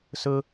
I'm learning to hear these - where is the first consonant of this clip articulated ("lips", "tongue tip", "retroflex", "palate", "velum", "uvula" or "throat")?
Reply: tongue tip